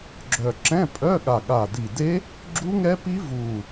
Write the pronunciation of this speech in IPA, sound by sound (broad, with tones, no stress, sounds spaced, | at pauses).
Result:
ɡ͡ǁ œ˨˩ ǁ ɛ̃˧˥˧ pʼ œ˧˥˧ ɠ a˨˩ ɠ a˨˩ d i˨˩ d e˦˥ | ɡ͡ǁ u˦˥ ŋ ɛ˦˥ p i˦˥ v u˨˩